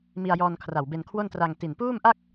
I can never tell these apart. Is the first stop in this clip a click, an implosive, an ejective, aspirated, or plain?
aspirated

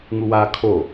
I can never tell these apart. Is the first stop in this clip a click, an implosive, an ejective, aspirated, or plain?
aspirated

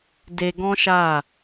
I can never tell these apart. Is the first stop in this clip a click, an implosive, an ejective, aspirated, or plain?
plain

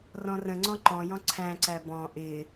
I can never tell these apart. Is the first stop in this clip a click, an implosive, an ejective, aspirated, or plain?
click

